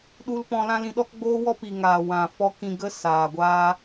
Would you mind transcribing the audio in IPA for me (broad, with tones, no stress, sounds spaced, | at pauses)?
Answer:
ɗ u˧ l p ɔ̃˧ l ã˦ l ĩ˧ ɗ ɔ˦ k ɡ͡b oː˦ w ɔ˦ p i˨ ŋ aː˨ w ã˨ f ɔ˧ k ĩ˧ ɡ ə˦ s aː˨ ɡʷ aː˦